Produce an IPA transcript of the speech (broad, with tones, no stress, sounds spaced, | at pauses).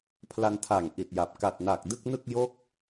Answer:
pʰ l a˧ n tʰ a˨˩ ŋ ʔ i˨˩ t̚ j a˨˩ p̚ k a˨˩ t̚ n a˨˩ k̚ d ɯ˥˩ k̚ n ɯ˥˩ k̚ j o˥˩ k̚